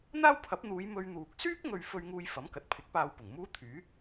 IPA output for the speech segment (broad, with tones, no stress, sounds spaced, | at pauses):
n̪ aː˥ w pʰ ɐ˨˥ p̚ n̪ uː˨˧ j m ɵ˧ ɥ n̪ uː˨ k̚ s yː˥ k̚ ŋ ɵ˨ ɥ f ɵ˧ ɥ ŋ uː˧ j f ɐ˨˥ m k ɐ˨˥ t̚ pʰ ɪ˨˥ k̚ p aː˧ w p ʊ˨˩ ŋ m uː˥ t̪ʰ yː˨˥